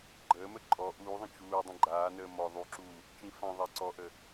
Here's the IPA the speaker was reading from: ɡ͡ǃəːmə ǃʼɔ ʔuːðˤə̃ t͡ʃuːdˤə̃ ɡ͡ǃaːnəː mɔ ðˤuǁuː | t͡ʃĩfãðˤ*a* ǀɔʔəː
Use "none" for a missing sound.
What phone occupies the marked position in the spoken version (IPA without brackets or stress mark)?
a